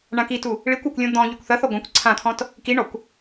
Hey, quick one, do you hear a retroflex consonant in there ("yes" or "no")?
yes